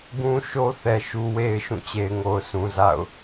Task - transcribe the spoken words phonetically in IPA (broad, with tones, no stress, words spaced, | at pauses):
ɡũ˦ ʃo˦θɛ˨ ʃu˨we˨ɪ̯ ʃũ˦˨t͡ɕe˨ɪ̯ŋo˨ʊ̯ sũ˨za̰˦˨ʊ̯